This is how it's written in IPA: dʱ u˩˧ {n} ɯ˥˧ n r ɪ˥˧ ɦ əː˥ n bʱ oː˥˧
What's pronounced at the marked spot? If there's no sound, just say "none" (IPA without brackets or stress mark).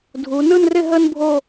n